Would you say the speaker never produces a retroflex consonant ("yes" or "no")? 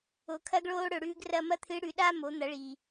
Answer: no